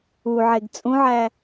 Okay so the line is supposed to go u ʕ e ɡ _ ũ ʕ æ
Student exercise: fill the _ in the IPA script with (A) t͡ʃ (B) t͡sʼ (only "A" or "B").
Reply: B